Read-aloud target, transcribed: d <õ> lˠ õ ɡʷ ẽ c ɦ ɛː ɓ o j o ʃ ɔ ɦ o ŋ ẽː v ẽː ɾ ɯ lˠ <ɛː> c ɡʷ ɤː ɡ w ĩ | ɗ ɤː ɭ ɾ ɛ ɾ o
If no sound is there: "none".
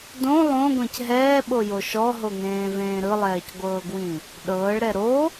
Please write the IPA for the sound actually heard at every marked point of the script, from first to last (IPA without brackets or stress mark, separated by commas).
õ, ɛː